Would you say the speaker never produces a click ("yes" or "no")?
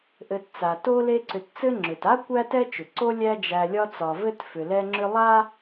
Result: no